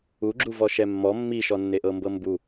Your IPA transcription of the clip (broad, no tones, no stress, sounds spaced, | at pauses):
u ɡ͡ǁ u v ɔ ʃ ɛ mː ɔ mː i ʃ ɔ nː e ʔ ɤ m b ɤ m b u